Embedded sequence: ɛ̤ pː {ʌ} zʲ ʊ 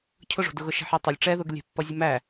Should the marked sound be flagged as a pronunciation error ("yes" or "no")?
no